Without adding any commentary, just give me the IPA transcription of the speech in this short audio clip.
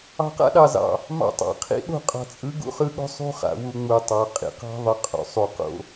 ɑ̤˨ q a̰˦ ɗ ɑ˨ z ɑ̰˨ | m ɑ̰˨ tˤ ɑ̰˨ qʰ ḭ˦ ɗ o̤˦˨ qʼ ɑ̤˨ t͡sʼ ɯ˨˦ ɡ ṵ˦ χ ɯ˦ ɠ o̤˦ sˤ ṳ˦ χ a̰˨ w u˨ ŋ͡m u˨ tˤ ɑ˨ qʼ ḭ˨ q ɑ̤˦ ðˤ ɯ˨ qʼ o̰˨ sˤ u˨ q o̰˦

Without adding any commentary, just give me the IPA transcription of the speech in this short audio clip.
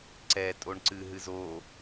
ǀ ɛ tʼ o ɳ ǀ ɨ ɦ ɨ z o

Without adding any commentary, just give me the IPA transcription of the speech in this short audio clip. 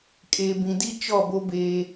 kʼ eː˨ b ĩ˨ d i˦ t͡ʃ ɔ˦˨ b o˦ b eː˦

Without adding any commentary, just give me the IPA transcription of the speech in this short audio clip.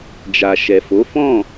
d͡ʒ a˨ ʃ ɛ˨ f o˨˦ f ɔ̃˦˨

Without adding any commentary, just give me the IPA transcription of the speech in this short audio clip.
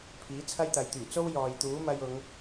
pʰ iː˨˥ t͡sʰ ɐ˥ j t̪ ɐ˨˧ j t̪ yː˨˩ t͡s o˥ w j ɔː˨ j t̪ uː˨˥ m ɐ˧ j ʊ˨˧ ŋ

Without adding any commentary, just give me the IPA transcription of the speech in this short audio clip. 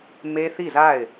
m e˦ θ i˦˨ z a˦˨ ɪ̯

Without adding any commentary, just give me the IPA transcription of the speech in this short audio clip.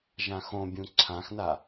ʒ ã x õ bʲ ũ ǀʰ ã x n a

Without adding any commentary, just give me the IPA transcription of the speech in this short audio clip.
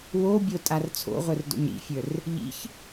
w o bʲ o tʼ a r t͡sʰ o̰ ʁʷ ə˞ r d o̰ ɲ ɾ ḭ fʲ ə˞ r | ʎ ḭ ç

